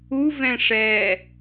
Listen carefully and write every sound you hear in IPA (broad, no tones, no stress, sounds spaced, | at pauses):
u v ɛ̃ ʂ ɛ